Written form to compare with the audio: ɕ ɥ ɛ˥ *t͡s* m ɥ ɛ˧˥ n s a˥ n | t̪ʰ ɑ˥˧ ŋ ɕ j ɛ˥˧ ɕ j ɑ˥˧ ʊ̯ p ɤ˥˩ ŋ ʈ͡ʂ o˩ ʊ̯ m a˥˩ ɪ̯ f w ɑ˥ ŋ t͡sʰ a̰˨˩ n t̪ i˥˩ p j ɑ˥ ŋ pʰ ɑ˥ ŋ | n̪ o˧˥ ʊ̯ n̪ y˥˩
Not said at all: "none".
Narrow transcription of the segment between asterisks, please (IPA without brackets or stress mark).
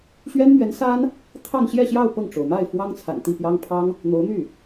n